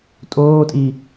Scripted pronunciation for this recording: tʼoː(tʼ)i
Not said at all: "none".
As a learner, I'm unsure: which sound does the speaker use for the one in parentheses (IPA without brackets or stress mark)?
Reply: tʼ